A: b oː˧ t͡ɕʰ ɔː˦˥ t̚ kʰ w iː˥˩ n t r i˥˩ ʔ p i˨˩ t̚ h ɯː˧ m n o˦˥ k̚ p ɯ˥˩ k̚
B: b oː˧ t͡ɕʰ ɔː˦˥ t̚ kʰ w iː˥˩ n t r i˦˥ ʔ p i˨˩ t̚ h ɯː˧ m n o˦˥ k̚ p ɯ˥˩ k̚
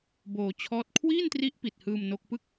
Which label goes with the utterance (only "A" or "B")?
B